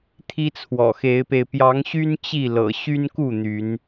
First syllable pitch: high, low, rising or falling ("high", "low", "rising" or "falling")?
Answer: high